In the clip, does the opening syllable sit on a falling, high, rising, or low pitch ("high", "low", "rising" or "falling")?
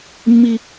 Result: high